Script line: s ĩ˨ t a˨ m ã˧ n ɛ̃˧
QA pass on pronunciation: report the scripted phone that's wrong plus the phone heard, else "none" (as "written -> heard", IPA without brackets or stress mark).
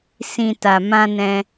none